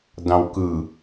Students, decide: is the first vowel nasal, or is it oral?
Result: nasal